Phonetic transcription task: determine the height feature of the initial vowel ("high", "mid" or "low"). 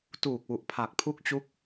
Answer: high